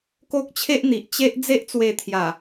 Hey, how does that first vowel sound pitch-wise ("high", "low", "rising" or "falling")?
high